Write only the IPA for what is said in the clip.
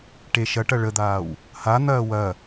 ʈ e ʃ ɐ ʈ ɐ ɭ ə d̪ aː w | h a n̪ ɐː w ɐ

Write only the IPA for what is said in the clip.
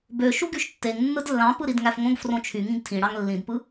b ø ʃ u ɡ y ʃ tː e ŋ nː ɯ d lː ɑ̃ p ɯ ɾ i d ŋ æ f ŋ õ ɡ f r õ t͡ʃʰ y ŋ ĩ ɡ tʰ ĩ ɽ ɑ ŋ lː ĩ d p ɯ

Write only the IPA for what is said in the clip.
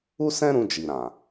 u˦ s ɛ̃˦ ɾ ũ˧ d͡ʒ i˨ ɾ ã˨

